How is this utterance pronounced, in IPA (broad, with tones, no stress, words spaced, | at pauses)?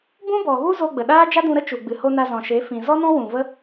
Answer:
bũ˦bɔ˨ɣu˦ zo˧ɡ͡bə˨ ɗaː˦d͡ʒa˦dũ˧ ɾə˦t͡ʃu˨ɡ͡bɨ˨ho˧ na˧zɔ̃˨ʃe˨˦fĩ˨ zɔ˦nɔ̃˦ wũ˨və˦